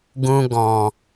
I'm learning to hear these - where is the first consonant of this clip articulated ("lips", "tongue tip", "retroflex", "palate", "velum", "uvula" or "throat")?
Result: velum